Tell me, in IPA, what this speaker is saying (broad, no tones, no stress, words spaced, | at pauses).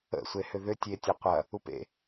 ə̰sʷe hʏðʏ tʲetʲɐqʷɐ | upḛ